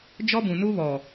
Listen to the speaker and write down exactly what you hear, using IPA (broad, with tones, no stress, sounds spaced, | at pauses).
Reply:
d͡ʒ ɔ˦ b ũ˨ n u˦ β ɔ˨